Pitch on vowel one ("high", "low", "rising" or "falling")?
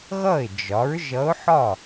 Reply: falling